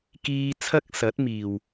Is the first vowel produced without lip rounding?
yes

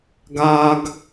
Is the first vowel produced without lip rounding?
yes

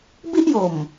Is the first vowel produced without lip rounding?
yes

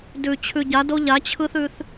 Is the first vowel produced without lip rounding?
no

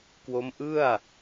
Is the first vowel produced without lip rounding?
no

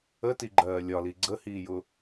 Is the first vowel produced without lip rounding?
yes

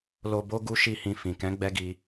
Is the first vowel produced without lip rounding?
no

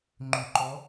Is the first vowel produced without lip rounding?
no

